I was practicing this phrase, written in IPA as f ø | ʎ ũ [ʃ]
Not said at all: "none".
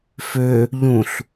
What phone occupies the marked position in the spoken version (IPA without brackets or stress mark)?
ɬ